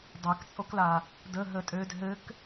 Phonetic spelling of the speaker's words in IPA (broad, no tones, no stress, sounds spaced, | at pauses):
dˤ a k t͡sʼ o k l a | d ə ɦ ə tʼ ø d ɦ ɘ k